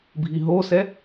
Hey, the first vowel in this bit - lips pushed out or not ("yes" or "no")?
no